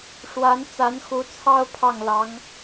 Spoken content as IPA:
ʂ w a˧˥ n t͡s a˧˥ n x u˧˥ t͡sʰ ɑ˥ ʊ̯ pʰ ɑ˥˩ ŋ l ɑ˧˥ ŋ

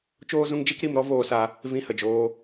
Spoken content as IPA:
t͡ʃ oː˦ z ũ˦ ŋ d͡ʒ i˦ k ɾ i˧ m ɾ ɔ˦ v oː˧ s a˧ | v ĩ˧ h ə˨ d͡ʒ oː˧

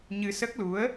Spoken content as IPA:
ɲ ɨ˧ s ə˦˥ k̚ l u˧˥ ə̯

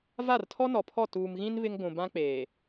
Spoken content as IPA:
v a˦˨ r tʰ ɔ˦ n ɔ˨ pʰ ɔ˦˨ t uː˨ m ɣ ĩ˦ n β ɪ˦ ŋ ɡʷ ũ˨ b ã˦ k͡p eː˨

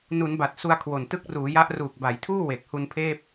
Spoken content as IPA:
n u˩˦ n b a˨˩ t̚ s u˧ a̯ kʰ w o˨˩ n t ɯ˦˥ k̚ r uː˩˦ j a˦˥ ʔ r uː˨˩ k̚ b a˩˦ j tʰ uː˥˩ w e˨˩ k̚ h u˧ n pʰ eː˥˩ p̚

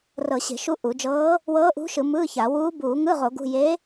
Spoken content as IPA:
r ɤ˧˩˧ ɕ e̤˧˩˧ ʃ u˧˥ ʔ u˧˩˧ d͡ʒ ɤː˧˥ | w ɤː˧˥ ʔ ṳ˧˥ ʃ ɯ˧˩˧ m ɯː˧˥˧ ç a˧˩˧ w uː˧˥ b uː˧˩˧ ŋ ɯ˧˥˧ ʁ o˧˩˧ ɡ ṳ˧˥˧ j e˧˥

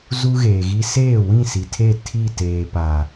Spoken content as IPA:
z u˦ ɣ eː˨ ɣ i˦ s eː˦˨ w ĩ˦˨ s i˨ tʰ e˦˨ tʰ i˦˨ t eː˨ p a˨

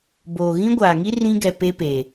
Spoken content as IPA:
b oː˨ ɣ ĩ˦ ɡʷ aː˨ ŋ i˦ r ĩ˦ ɡ ɛ˨ p e˦ p eː˨

